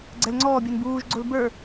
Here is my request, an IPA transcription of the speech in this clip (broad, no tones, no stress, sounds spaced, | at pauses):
ɡ͡ǀ ɛ l ŋ͡ǀ ɔː bʲ o n b uː ʒ ɡ͡ǀ o l b ə˞